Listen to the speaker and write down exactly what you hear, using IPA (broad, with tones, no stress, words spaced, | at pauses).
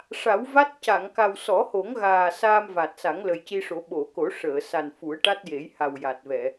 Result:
ʂa˨˩˦wva˦˥t̚ ca˨˩˨ŋka˨˩w sɔ˨˩˦ho˨˩˦ŋɣaː˨˩ saː˧mva˨˩t̚sa˨˩˦ŋ lə˨˩jci˧ʂo˨˩˦ ɓo˨˩˨ko˨˩˦ ʂəː˨˩˨ sa˨˩nfu˨˩˦ə̯ ʈa˦˥t̚je˨˩˦jha˨˩wja˨˩t̚ vɛ˨˩˨